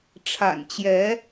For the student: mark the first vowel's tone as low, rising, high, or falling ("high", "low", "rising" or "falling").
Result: low